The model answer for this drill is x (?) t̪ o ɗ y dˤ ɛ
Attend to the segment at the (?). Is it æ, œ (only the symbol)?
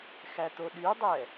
æ